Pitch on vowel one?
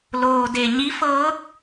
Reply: low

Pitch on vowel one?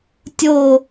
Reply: falling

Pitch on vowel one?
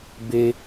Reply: high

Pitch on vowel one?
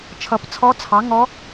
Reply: rising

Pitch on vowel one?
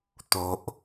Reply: low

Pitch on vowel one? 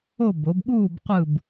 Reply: falling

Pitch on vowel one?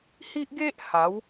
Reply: high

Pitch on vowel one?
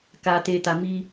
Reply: low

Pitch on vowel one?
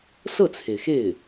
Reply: falling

